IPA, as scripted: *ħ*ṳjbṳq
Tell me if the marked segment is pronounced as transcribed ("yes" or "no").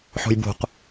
yes